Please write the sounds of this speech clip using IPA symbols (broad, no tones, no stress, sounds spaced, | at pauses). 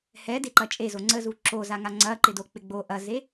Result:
h ɛ d e ǃ ɐ t͡ʃʼ e z o ŋ͡ǀ ə z u ǁ o z a ŋ a ŋ͡ǀ ɐ ǃ ɪ d o k͡p ɪ ɡ͡b o ʔ ɐ z e